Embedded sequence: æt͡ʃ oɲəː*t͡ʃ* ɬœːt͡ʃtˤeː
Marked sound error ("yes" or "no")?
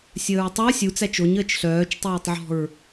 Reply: no